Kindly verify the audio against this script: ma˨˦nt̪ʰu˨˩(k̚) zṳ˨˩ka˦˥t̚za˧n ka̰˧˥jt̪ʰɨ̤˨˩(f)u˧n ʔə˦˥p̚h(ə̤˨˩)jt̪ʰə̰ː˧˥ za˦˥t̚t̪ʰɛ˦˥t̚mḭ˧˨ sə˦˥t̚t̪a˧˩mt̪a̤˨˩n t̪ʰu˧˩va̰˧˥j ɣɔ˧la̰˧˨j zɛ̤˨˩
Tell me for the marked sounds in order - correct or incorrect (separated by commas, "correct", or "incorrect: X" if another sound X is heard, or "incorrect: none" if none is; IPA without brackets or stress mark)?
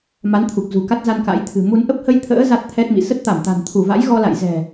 correct, incorrect: m, incorrect: ə˧